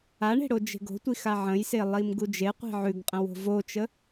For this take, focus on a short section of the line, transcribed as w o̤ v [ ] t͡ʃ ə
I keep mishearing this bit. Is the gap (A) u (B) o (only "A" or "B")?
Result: B